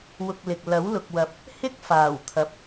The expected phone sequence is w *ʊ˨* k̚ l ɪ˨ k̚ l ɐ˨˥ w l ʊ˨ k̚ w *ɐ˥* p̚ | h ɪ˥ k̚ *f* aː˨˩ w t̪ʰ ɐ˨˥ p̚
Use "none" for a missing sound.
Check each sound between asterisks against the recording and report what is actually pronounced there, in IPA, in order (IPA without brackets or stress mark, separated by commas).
ʊ˨, ɐ˨, f